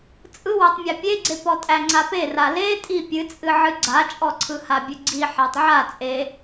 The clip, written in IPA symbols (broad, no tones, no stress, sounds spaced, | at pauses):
t͡sʼ ɯ w æ tˤ mʲ æ pʲ e ɡ͡ǀ e p ɔ tʼ æ ŋ͡ǀ a p e r a l e tʼ i pʲ ɨ t͡sʼ ɨ ʕ ɨ ɡ͡ǀ a t͡ʃʼ ɔ ǀʰ ɯ h a bʲ ɨ ɡ͡ǀ i ħ a tˤ ʕ a t͡sʼ e